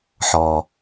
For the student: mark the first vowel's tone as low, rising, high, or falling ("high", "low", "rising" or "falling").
low